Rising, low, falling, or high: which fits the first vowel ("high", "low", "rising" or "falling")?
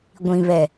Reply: low